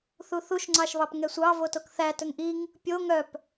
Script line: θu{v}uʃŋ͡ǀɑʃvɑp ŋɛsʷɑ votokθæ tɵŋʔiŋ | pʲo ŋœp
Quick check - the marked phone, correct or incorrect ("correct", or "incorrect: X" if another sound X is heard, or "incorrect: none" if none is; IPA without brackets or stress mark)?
incorrect: θ